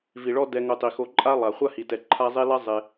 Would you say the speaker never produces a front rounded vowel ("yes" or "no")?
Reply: yes